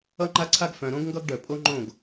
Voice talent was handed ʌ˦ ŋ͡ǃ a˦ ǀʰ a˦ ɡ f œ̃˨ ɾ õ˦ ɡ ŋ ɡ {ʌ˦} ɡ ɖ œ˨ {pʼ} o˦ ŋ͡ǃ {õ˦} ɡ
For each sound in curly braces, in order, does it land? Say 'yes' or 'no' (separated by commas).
yes, yes, no